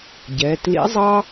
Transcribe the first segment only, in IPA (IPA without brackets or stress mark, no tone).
ɟ